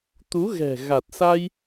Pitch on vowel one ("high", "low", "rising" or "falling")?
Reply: rising